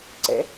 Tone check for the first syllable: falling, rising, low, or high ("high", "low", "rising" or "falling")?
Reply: rising